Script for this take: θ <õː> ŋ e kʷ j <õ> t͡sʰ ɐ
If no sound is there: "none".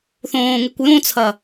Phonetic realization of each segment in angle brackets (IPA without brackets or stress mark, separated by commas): õː, õ